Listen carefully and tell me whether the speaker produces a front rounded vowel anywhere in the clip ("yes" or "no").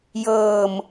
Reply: no